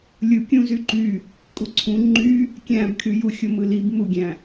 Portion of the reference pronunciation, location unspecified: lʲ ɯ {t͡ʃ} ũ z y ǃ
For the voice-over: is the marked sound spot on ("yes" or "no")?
no